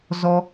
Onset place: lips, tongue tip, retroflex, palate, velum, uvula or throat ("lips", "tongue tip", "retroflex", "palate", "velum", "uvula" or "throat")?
tongue tip